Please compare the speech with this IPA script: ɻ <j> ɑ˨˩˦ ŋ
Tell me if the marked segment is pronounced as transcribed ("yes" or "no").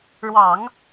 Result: no